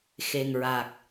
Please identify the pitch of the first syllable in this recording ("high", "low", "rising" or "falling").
low